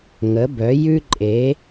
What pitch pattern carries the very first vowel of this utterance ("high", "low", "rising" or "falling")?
rising